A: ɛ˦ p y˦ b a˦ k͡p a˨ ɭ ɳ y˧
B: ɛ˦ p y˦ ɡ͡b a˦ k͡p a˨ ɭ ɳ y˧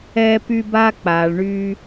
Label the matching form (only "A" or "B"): A